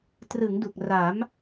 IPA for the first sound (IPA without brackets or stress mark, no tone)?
t